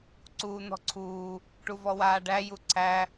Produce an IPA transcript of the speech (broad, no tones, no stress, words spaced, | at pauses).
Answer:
ǀuːn̪ɔ̤ǀʰuː | ʈuvɔwaːɖæ juǀʰæ